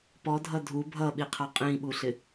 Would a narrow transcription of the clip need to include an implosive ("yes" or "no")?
yes